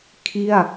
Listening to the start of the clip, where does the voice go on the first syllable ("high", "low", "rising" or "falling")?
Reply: falling